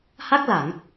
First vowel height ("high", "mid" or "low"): low